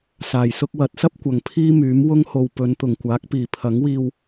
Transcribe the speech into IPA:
saː˨˩jsʊ˥k̚ wɐ˨˥t̚sɐ˥p̚kʷɐ˨ŋ pʰiː˥myː˨˥m wʊ˥ŋ ho˧w pɵ˨˧nt̪ʊ˨˩ŋkʷaː˨˥k̚piː˨˩ pʰɐ˨˥ŋwiː˧w

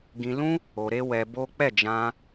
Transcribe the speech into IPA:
ɡĩ˧lũ˦ | o˧ ɾe˦wɛ˧bo˦ k͡pɛ˦˨d͡ʒã˧

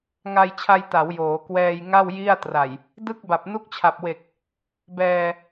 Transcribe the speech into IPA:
ŋa˧jt͡ɕʰa˧jta˩˦w joː˩˦ kwɛː˧j ŋa˥˩w ji˥˩a̯ tra˨˩j | dɯ˥˩k̚ba˨˩p̚ nu˦˥k̚t͡ɕʰa˨˩p̚we˨˩k̚ | bɛː˧

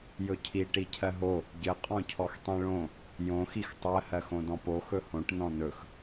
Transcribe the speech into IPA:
jɵcʰi ʈicʰɜɦo | ɟɘ qʼɔ̃cʰɔxtˤĩɭõ | jõ xixtˤɜ hɜxõdɔ̃po xɵhõʈ nɔ̃nɵx

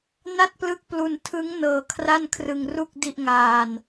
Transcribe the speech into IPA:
na˥˩t̚plɯ˦˥k̚plu˧n tʰɯ˦˥ŋ nɤː˧kʰra˥˩nkʰrɯ˧ŋru˥˩k̚ di˥˩ʔŋaː˧n

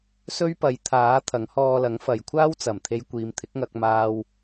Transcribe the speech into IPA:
sɵ˥ɥpɐ˨˥jt̪ʰaː˨˥ t̪ʰɐ˨˥ŋhɔː˧lɐ˨˥ŋfɐ˨˧j kʷʰaː˥wt͡sɐ˨˩m t̪ʰe˧jkʷiː˨˧m t̪ʰɪ˨˥k̚ŋɐ˧k̚maː˧w

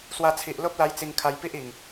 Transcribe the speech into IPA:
swa˧t͡sʰi˨ʔ lo˦p̚la˧j t͡si˧ŋ kʰa˧jpi˦ʔi˨˩ŋ

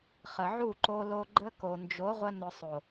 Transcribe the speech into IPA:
χə˨ʕu˦˨ǃo˧lo˧ ɡ͡ǃə˦ ko˨nd͡ʒo˨˦ʁʷə˧ nʊ˧sˤo˨

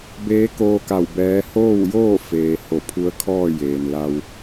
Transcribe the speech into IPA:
beː˧˥koː˧ka˧˩w bɛː˧˥ hoː˥˨wjoː˥˨ feː˩ ho˧˩pʰu˧˥ə̯kʰɔː˥˨ jeː˩n la˧w

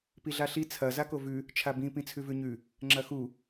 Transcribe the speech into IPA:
piɮaɬi t͡sʰɐ zakovʉ | t͡ʃʰabĩ pĩt͡sʰʉvʉɲʉ | ŋ͡ǁɐxu

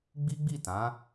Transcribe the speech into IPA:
ɡ͡bi˦ɡ͡bi˦˨tã˨˦

